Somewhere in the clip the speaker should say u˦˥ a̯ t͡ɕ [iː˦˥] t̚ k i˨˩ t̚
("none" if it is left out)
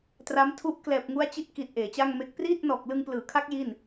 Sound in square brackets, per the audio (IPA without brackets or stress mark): i˦˥